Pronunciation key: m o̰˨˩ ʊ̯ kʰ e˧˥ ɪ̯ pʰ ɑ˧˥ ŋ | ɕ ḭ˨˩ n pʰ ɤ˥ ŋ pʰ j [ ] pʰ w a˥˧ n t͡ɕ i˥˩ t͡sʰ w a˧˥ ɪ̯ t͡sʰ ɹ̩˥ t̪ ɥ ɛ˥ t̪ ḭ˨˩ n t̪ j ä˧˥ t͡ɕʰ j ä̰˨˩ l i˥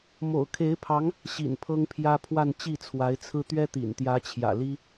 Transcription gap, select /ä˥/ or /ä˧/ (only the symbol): ä˥